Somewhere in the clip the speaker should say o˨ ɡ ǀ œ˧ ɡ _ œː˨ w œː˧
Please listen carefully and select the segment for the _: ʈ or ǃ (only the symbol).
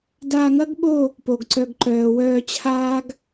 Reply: ǃ